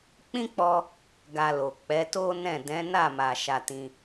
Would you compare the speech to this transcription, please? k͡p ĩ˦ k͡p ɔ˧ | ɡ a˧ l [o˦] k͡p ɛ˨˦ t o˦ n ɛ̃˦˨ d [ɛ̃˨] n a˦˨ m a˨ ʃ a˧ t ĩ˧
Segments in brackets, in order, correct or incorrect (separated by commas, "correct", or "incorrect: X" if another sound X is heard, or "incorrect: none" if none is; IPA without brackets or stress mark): incorrect: o˨, incorrect: ɛ̃˨˦